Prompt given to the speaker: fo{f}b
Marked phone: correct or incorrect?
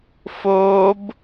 incorrect